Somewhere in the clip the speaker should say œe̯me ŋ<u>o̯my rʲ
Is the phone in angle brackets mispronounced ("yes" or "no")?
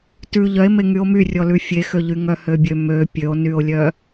yes